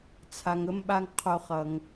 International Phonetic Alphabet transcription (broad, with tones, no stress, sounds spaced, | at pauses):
t͡sʰ a˨ ŋ ə˦ m ɓ a˦ ŋ qʰ o˧ χ ʌ˨ ŋ